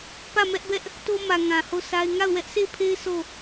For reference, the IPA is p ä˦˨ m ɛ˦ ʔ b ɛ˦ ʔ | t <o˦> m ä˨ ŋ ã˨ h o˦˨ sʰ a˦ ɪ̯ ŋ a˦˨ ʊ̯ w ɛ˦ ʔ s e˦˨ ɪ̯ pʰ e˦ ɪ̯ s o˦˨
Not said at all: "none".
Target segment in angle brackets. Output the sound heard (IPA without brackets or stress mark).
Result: o˦